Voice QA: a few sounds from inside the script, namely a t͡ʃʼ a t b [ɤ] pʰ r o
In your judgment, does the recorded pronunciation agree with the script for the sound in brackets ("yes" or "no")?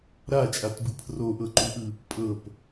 no